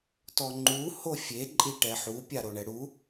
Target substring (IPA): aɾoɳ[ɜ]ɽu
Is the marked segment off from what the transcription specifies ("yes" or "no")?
yes